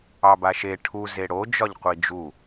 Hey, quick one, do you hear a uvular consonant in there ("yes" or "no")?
yes